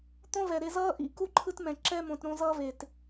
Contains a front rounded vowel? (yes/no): no